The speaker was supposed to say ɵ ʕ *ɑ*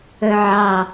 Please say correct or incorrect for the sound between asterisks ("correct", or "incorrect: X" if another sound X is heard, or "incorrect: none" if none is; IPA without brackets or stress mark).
correct